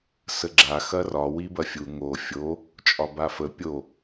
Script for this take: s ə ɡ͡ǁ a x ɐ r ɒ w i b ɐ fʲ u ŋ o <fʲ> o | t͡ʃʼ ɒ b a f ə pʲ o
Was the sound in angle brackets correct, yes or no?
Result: yes